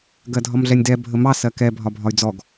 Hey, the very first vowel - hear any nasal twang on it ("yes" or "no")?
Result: no